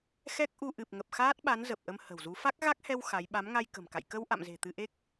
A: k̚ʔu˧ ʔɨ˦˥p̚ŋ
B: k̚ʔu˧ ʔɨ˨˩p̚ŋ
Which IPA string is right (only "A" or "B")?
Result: B